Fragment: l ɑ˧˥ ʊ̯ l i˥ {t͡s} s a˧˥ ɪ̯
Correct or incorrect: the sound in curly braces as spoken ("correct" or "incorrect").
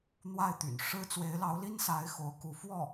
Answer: incorrect